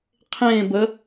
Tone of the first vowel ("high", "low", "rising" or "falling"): falling